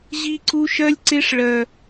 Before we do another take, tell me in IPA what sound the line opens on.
ʑ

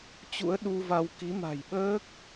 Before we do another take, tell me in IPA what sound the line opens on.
t͡ɕ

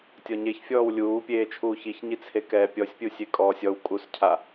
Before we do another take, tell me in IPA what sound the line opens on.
tʲ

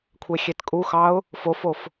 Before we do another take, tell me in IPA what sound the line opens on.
kʷʰ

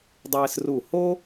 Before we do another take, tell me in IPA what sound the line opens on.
dˤ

